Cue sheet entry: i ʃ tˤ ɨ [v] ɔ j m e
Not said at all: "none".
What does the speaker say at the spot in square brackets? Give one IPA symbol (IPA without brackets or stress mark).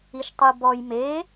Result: b